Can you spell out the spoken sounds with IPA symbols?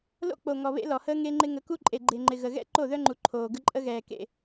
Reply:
l o̰˦ k͡p o˨ ŋ ɔ˨ β ḛ˦ l ɔ˨ h əː˦ ŋ e˦ ŋ͡ǃ ɪ˦ ŋ ə˨˦ k u˦ ǃʼ e˨ ɡ͡ǃ e˨ ŋ͡ǃ ɪ˨ ɣ ə˨ ɣ ɛ̰˦ ǃ o˦˨ ð œ˦ ŋ͡ǃ u˨ ǃʰ oː˨ ɡ ə˦ ǃʼ ə˦ ɣ ɛː˨ k ḛ˨

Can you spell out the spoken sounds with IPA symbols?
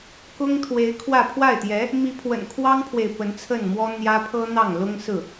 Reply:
k ʊ˥ ŋ t̪ʰ w e˧˥ ɪ̯ kʰ w ä˥˧ pʰ w a˥˩ ɪ̯ t̪ j ɛ˧˥ | m i˧˥ pʰ w ə̰˨˩ n kʰ w ɑ˥ ŋ pʰ w e˨ ɪ̯ p ə˧˥ n t͡sʰ ə˥˩ n m w ɔ˥ n̪ j ä˥ pʰ ɤ˥ n̪ ɑ˥˩ ŋ l ʊ˥ ŋ s ɹ̩˥˩

